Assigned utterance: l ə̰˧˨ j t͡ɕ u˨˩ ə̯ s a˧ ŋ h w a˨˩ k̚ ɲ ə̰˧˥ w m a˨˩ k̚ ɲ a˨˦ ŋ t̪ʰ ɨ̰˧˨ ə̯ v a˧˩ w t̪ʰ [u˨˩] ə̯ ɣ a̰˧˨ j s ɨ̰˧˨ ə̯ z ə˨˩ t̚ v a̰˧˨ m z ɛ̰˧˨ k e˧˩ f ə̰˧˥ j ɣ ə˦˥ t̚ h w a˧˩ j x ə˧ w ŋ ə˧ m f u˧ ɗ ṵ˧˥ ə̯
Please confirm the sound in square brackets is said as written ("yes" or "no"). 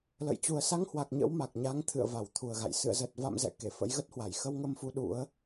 yes